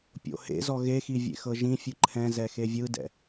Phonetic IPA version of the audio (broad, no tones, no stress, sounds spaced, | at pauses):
pʲ o̰ h ḛ z ɔ ɣ e x i vʲ ḛ x ɤ ʒ ĩ fʲ ɯ ǃʰ ɛ̃ z ɛ x e vʲ ɯ d ɛ̰